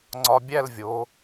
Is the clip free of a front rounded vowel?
yes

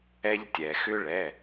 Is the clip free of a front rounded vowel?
no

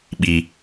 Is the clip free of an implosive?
no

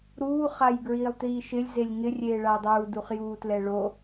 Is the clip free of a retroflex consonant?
no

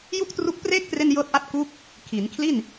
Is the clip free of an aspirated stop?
no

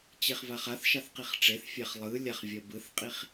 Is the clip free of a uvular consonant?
no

